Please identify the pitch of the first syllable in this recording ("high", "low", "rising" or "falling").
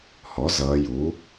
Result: rising